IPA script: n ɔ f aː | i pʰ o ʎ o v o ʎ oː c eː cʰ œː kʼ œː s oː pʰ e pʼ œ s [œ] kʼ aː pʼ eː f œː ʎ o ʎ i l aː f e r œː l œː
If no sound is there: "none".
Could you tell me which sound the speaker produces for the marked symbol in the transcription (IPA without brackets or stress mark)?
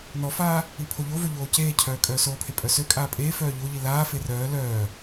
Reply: ø